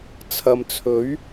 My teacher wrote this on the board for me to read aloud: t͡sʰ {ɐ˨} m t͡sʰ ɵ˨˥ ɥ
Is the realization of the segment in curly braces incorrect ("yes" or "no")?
no